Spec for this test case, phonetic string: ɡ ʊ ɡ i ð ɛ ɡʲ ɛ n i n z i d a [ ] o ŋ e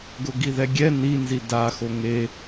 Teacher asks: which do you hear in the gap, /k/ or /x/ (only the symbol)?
x